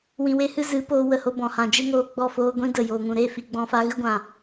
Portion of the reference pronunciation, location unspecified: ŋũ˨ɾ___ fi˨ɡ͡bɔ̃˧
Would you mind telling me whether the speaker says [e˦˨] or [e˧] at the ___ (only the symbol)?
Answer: e˦˨